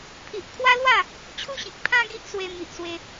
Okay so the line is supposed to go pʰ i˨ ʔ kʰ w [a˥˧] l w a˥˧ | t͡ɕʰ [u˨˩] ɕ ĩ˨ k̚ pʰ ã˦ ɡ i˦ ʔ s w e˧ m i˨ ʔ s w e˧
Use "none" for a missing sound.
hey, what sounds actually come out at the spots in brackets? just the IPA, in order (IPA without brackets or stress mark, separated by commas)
a˦, u˦